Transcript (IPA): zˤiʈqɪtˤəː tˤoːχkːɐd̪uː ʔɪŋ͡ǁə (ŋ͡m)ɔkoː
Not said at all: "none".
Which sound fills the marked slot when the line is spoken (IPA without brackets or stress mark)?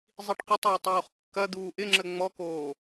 ŋ͡m